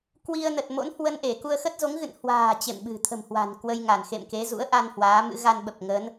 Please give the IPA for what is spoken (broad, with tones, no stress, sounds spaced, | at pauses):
k w i˧ ə̯ n ə˨˩ t̚ m o̰˧˥ n h w ə˧ n ʔ e˧˩ k u˧ ə̯ x ə˦˥ t̚ z o˨˦ ŋ ɣ ɨ̰˧˨ n h w a̤ː˨˩ t͡ɕ ḛ˧˨ m ɓ ɨ̤˨˩ t̪ʰ ə̤˨˩ m h w a̤˨˩ n k w ə˧ j ŋ a˧˩ n x ḛ˧˨ m k e˨˦ z ṵ˧˥ ə̯ ʔ a˧ n h w aː˨˦ m ɨ̰˧˥ ɣ a˧ n ɓ ə˨˩ p̚ ŋ ə˨˦ n